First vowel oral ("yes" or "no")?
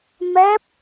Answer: yes